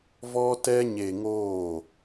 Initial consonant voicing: voiced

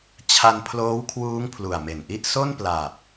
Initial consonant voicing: voiceless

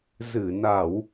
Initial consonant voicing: voiced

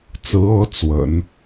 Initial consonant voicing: voiceless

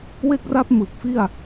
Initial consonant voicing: voiced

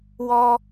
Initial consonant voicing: voiced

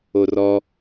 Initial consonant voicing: voiced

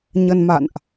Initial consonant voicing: voiced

